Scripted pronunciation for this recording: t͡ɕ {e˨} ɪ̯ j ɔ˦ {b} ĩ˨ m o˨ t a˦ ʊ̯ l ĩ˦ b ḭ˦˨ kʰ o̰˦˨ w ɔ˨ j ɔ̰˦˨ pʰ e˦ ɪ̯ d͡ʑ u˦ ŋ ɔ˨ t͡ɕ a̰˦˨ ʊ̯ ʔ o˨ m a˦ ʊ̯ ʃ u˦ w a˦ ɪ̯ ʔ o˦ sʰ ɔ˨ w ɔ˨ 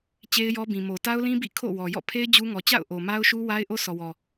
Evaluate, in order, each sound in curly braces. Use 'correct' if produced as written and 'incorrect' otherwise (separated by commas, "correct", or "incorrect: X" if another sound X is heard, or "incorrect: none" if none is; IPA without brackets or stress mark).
incorrect: e˦, correct